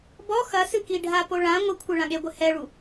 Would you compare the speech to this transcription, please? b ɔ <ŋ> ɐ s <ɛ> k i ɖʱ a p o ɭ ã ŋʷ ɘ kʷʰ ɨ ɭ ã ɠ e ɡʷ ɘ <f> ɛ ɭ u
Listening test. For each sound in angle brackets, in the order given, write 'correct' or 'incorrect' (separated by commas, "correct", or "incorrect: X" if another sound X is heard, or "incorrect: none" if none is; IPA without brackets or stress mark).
incorrect: x, incorrect: ɨ, incorrect: h